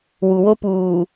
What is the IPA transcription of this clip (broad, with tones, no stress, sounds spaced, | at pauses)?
w u˨ w o˦ p uː˨